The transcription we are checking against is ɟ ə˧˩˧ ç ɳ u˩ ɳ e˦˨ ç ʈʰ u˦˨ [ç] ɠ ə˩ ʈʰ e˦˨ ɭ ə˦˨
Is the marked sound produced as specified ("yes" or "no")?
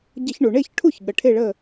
yes